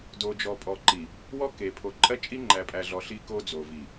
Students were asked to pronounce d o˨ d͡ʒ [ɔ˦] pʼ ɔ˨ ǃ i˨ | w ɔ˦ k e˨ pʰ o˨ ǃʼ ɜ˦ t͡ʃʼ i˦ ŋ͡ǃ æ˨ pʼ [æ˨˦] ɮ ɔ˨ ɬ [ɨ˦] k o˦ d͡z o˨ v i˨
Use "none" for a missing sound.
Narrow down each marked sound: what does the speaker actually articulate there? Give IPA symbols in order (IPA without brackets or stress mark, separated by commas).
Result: ɔ˨, æ˨, i˦